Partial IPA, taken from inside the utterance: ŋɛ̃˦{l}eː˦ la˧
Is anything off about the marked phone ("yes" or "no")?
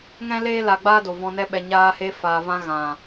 no